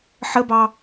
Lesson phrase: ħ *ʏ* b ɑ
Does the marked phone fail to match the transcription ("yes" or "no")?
yes